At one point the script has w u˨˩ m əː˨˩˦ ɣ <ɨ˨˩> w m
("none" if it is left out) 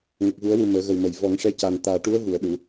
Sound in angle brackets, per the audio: ə˨˩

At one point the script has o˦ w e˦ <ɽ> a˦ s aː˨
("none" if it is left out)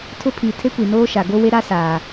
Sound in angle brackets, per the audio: ɾ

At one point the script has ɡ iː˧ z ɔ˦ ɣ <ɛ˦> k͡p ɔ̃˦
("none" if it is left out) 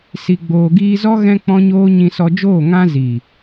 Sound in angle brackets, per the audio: ɛ̃˦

